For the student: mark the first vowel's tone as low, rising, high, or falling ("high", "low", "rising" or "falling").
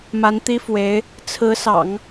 rising